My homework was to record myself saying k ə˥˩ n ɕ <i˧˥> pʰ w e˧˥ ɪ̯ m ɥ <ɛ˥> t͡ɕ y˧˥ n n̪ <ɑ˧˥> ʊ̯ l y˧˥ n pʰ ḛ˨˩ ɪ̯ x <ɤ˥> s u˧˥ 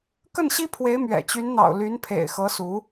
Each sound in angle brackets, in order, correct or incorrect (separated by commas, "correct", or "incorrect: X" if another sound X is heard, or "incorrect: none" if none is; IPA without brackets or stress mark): incorrect: i˥, incorrect: ɛ̰˨˩, incorrect: ɑ̰˨˩, incorrect: ɤ˧˥